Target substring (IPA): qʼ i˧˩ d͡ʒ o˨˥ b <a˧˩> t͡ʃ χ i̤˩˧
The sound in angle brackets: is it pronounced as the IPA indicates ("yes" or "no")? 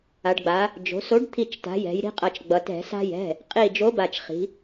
yes